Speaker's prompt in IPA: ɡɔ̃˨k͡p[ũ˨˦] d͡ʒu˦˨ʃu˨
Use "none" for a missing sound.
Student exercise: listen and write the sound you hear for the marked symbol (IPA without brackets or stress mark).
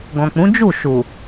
ũ˨˦